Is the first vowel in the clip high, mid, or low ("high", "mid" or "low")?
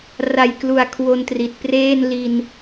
low